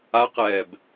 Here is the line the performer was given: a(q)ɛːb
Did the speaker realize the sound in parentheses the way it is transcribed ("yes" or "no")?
yes